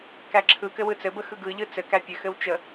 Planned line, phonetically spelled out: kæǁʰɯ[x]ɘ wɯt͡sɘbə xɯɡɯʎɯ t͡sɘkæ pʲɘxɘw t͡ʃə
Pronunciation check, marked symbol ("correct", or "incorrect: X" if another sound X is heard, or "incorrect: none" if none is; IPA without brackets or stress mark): incorrect: k